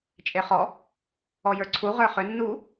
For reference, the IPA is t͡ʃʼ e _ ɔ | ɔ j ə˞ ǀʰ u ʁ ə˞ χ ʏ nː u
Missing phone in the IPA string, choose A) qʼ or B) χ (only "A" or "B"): B